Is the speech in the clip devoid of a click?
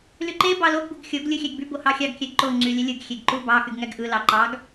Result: no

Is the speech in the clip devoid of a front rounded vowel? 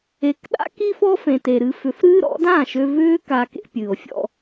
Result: no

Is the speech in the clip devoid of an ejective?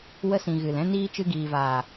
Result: yes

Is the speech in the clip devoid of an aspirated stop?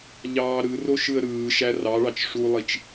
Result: yes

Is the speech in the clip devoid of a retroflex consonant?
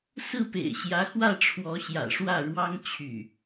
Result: no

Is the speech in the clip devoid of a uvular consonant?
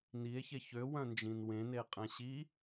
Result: no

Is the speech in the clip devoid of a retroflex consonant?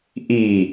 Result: yes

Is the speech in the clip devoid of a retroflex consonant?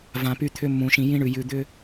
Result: no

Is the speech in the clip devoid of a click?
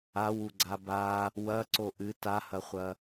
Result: no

